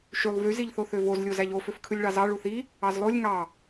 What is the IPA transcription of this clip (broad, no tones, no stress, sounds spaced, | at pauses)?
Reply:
ʃ y lˠ v y z i ʎ θ o θ ø v o z lʲ o z æ ʎ o f ø f kʰ ɯ lʲ ɭ ɑ z ɑ ɭ u θ i | ɑ z lˠ o lʲ ŋ ɑ